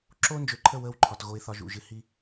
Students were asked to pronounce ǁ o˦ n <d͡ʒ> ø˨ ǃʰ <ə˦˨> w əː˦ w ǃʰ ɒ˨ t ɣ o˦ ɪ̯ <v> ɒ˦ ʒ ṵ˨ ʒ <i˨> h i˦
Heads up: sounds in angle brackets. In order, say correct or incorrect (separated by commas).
correct, correct, incorrect, incorrect